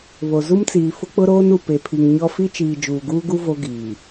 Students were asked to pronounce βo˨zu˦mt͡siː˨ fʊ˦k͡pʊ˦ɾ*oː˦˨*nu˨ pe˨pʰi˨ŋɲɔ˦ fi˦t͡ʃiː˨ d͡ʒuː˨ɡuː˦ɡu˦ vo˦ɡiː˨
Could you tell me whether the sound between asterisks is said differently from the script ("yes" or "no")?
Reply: yes